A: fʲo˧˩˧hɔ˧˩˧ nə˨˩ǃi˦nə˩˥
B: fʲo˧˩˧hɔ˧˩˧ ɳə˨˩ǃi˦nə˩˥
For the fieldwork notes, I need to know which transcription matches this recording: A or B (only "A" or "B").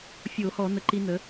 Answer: A